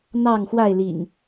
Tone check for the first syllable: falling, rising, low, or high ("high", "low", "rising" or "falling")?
falling